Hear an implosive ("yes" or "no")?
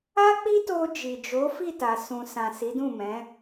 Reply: no